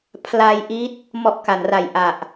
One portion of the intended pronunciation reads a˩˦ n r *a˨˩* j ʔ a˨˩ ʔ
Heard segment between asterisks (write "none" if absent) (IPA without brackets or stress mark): a˨˩